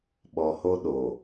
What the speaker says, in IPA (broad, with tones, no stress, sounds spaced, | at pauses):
ɓ ɔ˨ h o˦ ɗ o˨